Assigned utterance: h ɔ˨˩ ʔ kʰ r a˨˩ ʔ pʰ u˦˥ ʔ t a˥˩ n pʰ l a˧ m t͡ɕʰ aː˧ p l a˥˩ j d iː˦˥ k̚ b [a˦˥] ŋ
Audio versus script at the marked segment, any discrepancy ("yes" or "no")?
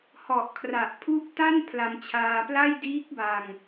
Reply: yes